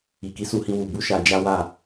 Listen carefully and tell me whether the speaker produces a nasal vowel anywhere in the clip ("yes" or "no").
yes